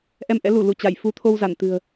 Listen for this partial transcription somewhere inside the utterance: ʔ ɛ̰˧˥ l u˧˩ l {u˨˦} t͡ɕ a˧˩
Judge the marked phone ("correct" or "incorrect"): incorrect